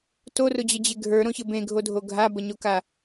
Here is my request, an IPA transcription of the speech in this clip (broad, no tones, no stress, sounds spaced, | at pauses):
t o r ʊ d͡ʑ ə d͡ʑ e ɡʱ ə˞ ɾ õ ç ɘ b ẽ ɡʱ o dʱ o ɡʱ a b ə ɲ o k a